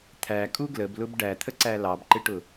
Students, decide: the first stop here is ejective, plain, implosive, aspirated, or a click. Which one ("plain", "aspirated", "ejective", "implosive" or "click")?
aspirated